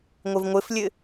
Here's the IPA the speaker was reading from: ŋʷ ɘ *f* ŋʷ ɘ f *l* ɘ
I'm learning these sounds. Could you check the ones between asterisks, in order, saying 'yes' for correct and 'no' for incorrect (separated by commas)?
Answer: no, no